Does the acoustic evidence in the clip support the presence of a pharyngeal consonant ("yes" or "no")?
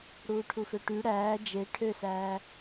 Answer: no